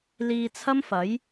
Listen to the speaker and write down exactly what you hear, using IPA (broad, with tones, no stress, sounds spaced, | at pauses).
l iː˧ t͡sʰ ɐ˥ m f ɐ˨˥ j